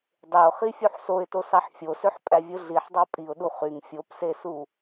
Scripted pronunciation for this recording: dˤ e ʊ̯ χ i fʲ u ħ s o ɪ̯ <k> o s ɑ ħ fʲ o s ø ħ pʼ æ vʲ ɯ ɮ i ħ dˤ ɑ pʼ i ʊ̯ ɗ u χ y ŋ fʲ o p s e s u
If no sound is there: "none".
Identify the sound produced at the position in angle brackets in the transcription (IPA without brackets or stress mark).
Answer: t